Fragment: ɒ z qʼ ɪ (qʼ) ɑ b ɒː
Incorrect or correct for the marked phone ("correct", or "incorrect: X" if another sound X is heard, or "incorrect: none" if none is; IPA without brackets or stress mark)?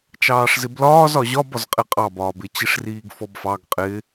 correct